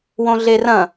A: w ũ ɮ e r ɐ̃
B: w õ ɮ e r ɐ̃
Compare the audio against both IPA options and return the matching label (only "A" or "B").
B